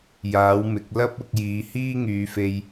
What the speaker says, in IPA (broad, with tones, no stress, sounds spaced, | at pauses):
j aː˨˥ w m ɪ˨˥ k̚ l ɐ˥ p̚ ʊ˧ k̚ j iː˨˧ h iː˥ ŋ yː˨˧ f e˧ j